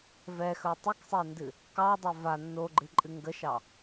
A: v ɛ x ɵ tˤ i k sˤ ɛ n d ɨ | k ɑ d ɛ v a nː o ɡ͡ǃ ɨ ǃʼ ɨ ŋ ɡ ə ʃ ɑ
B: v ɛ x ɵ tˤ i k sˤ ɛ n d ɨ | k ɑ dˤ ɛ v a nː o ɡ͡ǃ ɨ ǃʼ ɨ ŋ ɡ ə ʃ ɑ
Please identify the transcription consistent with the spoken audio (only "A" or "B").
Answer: B